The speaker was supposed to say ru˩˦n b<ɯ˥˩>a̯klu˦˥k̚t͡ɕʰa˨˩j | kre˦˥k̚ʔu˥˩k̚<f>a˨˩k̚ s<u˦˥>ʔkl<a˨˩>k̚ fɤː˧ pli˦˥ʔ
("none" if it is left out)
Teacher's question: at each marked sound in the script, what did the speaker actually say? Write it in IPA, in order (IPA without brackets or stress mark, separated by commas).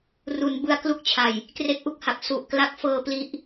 ɯ˦˥, h, u˨˩, a˦˥